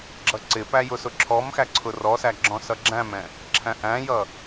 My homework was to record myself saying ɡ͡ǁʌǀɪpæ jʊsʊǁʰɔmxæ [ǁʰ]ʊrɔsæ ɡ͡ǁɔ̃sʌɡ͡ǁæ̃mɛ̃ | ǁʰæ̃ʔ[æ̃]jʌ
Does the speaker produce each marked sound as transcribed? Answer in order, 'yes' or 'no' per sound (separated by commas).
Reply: no, yes